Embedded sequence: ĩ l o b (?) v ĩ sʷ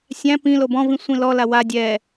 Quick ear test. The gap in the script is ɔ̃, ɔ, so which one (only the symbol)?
ɔ̃